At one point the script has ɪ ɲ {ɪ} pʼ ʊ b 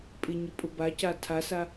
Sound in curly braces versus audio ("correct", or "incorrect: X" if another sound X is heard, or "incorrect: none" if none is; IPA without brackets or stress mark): correct